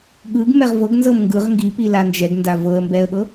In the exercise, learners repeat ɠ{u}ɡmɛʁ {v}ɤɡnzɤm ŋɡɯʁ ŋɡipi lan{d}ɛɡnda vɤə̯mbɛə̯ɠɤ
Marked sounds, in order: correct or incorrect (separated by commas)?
incorrect, correct, incorrect